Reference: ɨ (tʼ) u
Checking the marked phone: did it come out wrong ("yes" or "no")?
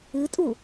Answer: no